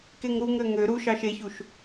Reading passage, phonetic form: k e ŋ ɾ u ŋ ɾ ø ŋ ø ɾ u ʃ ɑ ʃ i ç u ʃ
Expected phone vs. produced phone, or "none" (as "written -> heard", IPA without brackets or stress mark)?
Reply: i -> e